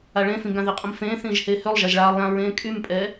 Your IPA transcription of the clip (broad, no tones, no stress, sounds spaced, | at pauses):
a ɭ ẽ f ĩ ɡ ã ð i qʼ ə̃ m f ẽː θ ĩː ʒ h eː h ø lˠ ʒ a ʒ ɭ aː lˠ j ã ɹ ẽː kʼ y m pʼ ɛ